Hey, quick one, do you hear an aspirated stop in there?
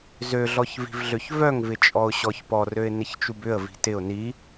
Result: no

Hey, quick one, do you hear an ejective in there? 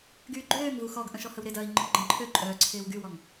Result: yes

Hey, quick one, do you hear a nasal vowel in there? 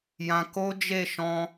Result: yes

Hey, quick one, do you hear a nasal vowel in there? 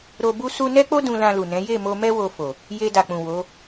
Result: yes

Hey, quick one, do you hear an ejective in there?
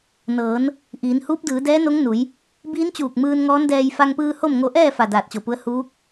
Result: no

